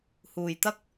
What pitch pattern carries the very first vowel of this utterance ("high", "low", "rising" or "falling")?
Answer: low